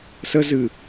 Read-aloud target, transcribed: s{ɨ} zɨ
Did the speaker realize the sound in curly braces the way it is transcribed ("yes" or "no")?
no